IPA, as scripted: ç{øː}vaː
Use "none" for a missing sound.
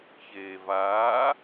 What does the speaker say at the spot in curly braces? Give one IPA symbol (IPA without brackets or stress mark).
eː